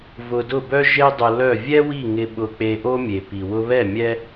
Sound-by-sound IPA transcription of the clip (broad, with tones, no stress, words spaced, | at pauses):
vʊ˧dʊ˥˩bœ˥ ʒe˥dˤʊ˧ lœ˥˩ vʲɛ˥wi˥˩ ŋɪ˧ ɓʊ˧k͡pe˧ʔo˥ mʲe˩ pi˩wʊ˧βɛ˥˩ mʲɛ˥